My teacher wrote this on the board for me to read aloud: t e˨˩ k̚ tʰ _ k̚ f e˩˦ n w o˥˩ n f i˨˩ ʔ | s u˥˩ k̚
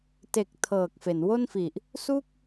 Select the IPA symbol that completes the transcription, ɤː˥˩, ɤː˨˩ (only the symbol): ɤː˨˩